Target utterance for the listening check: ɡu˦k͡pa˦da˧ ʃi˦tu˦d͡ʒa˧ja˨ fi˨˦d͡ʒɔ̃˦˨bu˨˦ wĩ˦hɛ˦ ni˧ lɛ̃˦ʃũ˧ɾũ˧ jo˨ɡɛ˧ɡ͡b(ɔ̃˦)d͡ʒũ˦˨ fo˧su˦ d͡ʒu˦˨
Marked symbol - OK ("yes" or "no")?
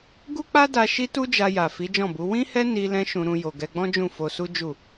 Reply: yes